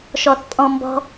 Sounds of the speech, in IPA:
ʃɔθpʼɔ̃mbɔ̤

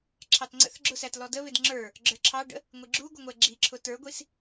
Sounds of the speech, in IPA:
ǁʰɑtŋ͡ǀə̰θɡ͡ǁʊsæt lɔdəβɪd ŋ͡ǁə˞ | ɡ͡ǁə˞ǁʰɑɖə̰ | ŋʷiɡ͡ǁuɡʷəŋʷɛ ɡ͡ǁiǁʰʊ tə˞ɡʷis

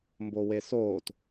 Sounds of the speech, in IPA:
mbowesoːt

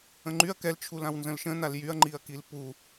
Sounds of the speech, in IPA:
ə̃ŋ͡ǃyɐ̯ kɛlt͡ʃʰul ãwnzə̃lʃə̃ naljyɐ̯ŋ͡ǃiɐ̯kil pu

